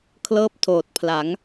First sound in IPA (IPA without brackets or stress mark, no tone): kʰ